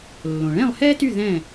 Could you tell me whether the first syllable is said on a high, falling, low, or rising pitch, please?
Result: low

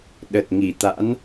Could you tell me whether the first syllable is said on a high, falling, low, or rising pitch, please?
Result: low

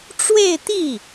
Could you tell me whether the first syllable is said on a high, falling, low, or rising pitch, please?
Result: falling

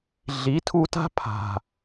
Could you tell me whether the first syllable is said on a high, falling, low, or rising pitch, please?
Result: rising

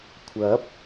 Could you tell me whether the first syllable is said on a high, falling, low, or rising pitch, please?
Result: rising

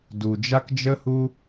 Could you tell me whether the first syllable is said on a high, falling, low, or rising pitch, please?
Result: low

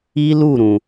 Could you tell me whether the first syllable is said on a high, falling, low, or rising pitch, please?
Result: high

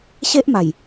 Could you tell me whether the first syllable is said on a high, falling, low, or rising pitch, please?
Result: high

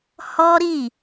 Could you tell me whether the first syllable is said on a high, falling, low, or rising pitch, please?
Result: high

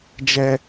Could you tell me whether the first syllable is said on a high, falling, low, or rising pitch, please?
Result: high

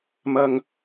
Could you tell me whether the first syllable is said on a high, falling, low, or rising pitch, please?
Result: low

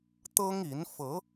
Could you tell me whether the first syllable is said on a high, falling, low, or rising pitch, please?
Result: high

